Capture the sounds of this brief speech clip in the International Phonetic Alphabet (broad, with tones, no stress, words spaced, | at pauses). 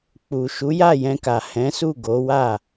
k͡pu˨ ʃu˨˦ja˦˨jɛ̃˧ka˨ hɛ̃˨˦su˦˨ ɡo˨˦wa˦˨